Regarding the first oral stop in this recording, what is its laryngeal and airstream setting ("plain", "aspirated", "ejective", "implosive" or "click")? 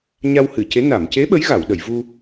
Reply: plain